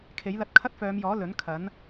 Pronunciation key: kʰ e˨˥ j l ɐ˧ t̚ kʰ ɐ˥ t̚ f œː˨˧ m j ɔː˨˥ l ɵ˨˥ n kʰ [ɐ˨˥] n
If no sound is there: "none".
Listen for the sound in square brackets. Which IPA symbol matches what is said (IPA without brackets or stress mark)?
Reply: ɐ˨˥